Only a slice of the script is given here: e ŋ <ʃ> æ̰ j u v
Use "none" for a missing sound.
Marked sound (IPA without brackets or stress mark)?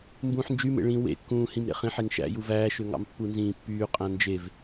ʃ